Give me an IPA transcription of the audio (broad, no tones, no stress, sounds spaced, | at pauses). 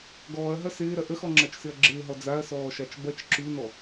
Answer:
ɡ ɔː ɐ̯ ɦ ɐ s ɪː ɾ ɐ ʔ ə x ɔ ŋ͡ǁ ɐ t͡ʃ s ɪ ɐ̯ ɡ͡ǁ ɪː ɦ ɔ d͡z a ɐ̯ s ɔː ʃ a t͡ʃ b ɐ t͡ʃ ǁ ʉ n ɔ